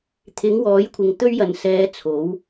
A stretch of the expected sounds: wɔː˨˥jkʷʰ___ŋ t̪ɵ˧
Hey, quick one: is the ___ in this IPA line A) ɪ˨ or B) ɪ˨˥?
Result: A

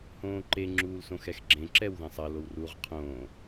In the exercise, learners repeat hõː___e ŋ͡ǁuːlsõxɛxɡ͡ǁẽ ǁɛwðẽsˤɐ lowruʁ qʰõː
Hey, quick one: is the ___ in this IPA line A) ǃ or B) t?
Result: A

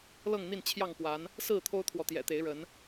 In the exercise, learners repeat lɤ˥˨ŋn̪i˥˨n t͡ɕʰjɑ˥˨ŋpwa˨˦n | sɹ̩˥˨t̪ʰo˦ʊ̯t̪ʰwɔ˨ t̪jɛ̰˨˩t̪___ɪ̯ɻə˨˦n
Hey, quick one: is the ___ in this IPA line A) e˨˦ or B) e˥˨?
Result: A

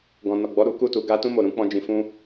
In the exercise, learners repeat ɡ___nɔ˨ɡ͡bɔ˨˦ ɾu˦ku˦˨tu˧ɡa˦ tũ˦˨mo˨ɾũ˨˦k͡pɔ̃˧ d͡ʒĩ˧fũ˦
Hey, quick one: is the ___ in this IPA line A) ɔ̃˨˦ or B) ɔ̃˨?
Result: B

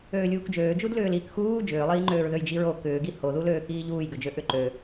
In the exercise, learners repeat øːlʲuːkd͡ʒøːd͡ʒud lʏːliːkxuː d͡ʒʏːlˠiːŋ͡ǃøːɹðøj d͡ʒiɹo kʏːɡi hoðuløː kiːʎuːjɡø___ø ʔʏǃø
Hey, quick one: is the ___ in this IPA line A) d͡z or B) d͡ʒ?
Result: B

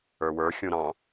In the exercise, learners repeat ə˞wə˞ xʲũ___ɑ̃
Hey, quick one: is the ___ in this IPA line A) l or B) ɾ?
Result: B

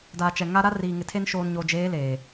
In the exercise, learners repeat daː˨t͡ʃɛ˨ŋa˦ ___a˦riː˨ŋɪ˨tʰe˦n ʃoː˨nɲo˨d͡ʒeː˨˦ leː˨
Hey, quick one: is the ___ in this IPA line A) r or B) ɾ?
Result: B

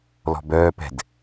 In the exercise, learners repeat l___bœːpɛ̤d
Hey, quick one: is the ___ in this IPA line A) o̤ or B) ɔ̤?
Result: B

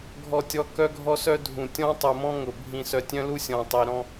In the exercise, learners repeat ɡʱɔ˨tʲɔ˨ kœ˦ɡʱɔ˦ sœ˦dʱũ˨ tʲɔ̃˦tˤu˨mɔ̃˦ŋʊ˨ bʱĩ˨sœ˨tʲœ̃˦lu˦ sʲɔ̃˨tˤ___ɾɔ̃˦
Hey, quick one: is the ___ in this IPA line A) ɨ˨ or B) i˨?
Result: B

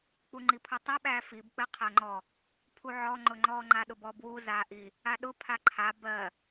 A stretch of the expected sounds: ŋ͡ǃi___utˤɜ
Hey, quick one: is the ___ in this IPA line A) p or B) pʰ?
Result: B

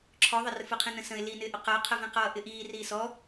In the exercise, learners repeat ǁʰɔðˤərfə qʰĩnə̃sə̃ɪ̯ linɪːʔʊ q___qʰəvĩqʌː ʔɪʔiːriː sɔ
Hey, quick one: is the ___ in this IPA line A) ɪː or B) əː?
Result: B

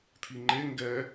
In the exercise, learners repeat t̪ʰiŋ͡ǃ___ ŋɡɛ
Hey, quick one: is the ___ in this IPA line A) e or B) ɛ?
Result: A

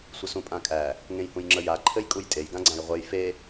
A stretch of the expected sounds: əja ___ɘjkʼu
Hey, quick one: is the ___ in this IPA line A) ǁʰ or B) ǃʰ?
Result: B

